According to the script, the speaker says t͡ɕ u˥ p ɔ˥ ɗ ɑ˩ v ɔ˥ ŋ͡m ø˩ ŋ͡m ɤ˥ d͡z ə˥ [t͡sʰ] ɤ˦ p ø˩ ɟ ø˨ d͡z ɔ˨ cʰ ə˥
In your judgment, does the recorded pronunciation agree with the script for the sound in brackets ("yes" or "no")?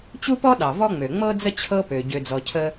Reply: no